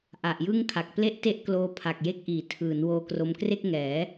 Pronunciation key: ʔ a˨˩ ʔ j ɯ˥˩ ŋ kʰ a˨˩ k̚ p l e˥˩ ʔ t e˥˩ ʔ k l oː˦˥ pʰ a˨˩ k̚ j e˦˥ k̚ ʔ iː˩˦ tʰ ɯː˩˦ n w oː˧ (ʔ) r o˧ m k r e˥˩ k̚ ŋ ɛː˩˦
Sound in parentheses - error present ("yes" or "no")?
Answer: yes